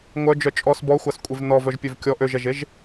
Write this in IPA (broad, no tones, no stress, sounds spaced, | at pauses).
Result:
ŋʷ œ d͡ʒ œ t͡ʃʼ ɔ s b ɔ xʷ a s kʷʼ e v n ɔ v œ ʒ pʲ ø v kʲ ɔ ʔ ø ʒ ɛ ʒ e ʒ